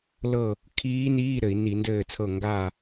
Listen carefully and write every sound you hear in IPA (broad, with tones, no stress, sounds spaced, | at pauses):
l ɤ˥˨ | kʰ iː˦˥ n iː˧˥˧ ɾ ɘ˧˩˧ i̯ n i˧˩˧ n d ɘː˥˨ t͡sʰ ɤ˥˨ ŋ ɡ a˥˨